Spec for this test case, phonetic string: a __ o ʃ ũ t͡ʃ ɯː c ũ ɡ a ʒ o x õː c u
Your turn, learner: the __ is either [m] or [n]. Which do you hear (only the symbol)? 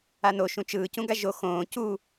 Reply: n